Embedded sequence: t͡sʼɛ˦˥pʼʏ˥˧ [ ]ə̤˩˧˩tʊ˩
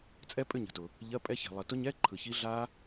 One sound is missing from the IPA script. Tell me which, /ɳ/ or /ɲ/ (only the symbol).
ɲ